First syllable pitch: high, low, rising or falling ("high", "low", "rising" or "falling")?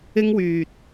high